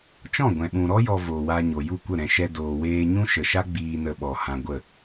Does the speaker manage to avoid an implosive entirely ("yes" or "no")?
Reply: no